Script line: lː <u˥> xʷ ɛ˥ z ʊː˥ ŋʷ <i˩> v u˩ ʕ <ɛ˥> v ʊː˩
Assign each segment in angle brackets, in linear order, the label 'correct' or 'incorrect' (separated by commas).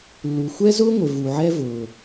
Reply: incorrect, incorrect, correct